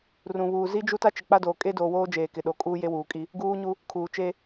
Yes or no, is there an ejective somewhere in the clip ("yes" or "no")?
yes